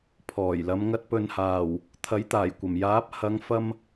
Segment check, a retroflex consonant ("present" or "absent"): absent